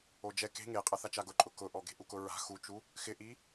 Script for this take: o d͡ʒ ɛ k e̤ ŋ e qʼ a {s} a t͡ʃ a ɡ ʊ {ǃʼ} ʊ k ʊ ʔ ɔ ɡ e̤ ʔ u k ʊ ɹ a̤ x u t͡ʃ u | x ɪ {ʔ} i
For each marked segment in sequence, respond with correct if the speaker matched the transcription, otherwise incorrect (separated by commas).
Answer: incorrect, correct, correct